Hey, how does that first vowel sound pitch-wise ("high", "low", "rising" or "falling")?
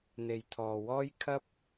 low